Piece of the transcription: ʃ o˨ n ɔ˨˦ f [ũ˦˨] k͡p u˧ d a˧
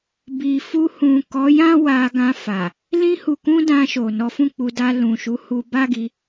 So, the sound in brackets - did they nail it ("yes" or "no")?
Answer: yes